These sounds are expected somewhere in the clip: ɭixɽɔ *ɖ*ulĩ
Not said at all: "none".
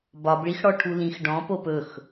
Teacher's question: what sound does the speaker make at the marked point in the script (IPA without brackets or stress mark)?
ʈʰ